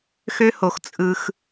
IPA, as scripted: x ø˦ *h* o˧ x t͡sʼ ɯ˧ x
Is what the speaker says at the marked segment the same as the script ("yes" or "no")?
yes